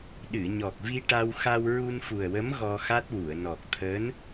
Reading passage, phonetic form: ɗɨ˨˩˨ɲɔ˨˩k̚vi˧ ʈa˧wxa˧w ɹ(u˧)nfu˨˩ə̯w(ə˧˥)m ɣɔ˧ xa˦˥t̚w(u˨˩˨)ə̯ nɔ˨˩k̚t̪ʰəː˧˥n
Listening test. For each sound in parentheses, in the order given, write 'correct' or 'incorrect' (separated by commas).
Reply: correct, correct, correct